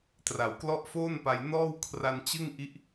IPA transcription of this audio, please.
t r a˩˦ w k l ɔ˥˩ ʔ f oː˥˩ n p a˧ j n ɔː˥˩ w kʰ r a˧ n t͡ɕ ɯ˥˩ ŋ ʔ i˦˥ ʔ

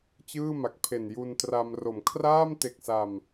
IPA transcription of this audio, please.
t͡ɕ ɯː˥˩ m a˨˩ k̚ pʰ e˨˩ n j u˧ n t r a˧ m r o˩˦ m kʰ r aː˥˩ m t e˨˩ k̚ s a˨˩ m

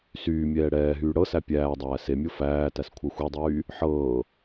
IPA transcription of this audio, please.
s yː mʲ ɛː ɽ ɛː ɦ yː ɽ ɤ s æ pʲ æː dˤ æː s e mʲ ɤ f æː t æ s kʷʰ ɜ xʷ e dˤ yː | ħ ɤː

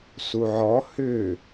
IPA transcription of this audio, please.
s u ʕ ɔ h ʏ

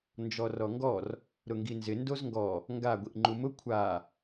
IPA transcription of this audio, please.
n d͡ʒ ɔ r ɔ ŋ ɡ ɔ r | ɾ ʊ ŋ ɡ i n z ɪ n d o z ŋ ɡ ɔ | ŋ ɡ a ɡʷ i ʔ ŋ͡ǃ u m ʊ kʷʰ a

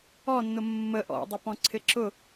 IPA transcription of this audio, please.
ɔ nː ʊ mː ə ʔ ɔ̰ dˤ ʊ p ɔ̃ ǀʰ ɪ ǁ ʊ

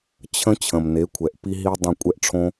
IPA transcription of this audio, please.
t͡ɕʰ ə̃˥ t͡ɕʰ ə̃˩ m n e˩˥ kʷʰ ɛ˩ ʔ p i˥ ɦ i˥ dˤ ə̃˥˩ kʷʼ ɛ˥ ʔ ʈ͡ʂʰ õ˥

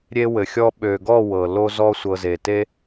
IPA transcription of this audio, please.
ɾʲ e˧ w ɘ˨ xʲ ɔ˧ ɓ ø˨ ɡ ɔ˦˨ w ɤ˨ l o˧ z ɔ˧ sʷ ɤ˨ z e˨ t e˦

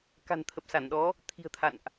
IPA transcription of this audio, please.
k a̤˨˩ n t̪ʰ ə˨˩ p̚ s a˧˩ n ɗ ɔ˨˦ | t̪ʰ i̤˨˩ ə̯ t̪ʰ a̰˧˨ n ʔ

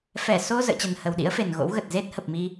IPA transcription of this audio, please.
f ɛ˧˩ s o˧ z ə̰ː˧˨ t͡ɕ ə˨˩ n h ə˨˩ w ɗ ḭ˧˥ ə̯ f e˨˩ n ɣ o̰˧˥ w ɣ ə˨˩ t̚ z e˦˥ t̚ h ə˨˩ p̚ m i˧

